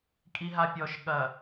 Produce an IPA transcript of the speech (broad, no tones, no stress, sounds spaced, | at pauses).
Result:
kʼ i ɦ a pʲ ɔ ʃ ɠ ɐ